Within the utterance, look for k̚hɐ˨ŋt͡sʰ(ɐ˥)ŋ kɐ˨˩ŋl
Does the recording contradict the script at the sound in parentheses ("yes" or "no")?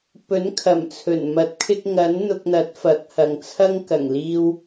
no